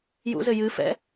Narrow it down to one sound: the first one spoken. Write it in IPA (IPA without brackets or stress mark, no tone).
j